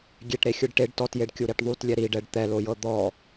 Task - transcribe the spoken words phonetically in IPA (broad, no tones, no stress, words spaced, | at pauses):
ɡʲeʈɾexʲɯɖ ʈeɖ tɔtjeɖkʲuɾiʈ ðˤutlʲɛ ɾiɖɛɖ t̪ɛlojɤ d̪ɔ